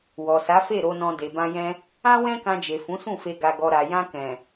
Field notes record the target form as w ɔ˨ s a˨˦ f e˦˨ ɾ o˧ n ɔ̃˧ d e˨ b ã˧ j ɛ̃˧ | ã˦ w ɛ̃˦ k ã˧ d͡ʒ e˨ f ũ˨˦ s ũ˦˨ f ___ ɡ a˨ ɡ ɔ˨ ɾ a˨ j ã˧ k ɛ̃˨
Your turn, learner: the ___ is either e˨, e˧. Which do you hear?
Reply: e˧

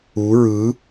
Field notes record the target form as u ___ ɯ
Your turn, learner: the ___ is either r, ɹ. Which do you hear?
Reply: ɹ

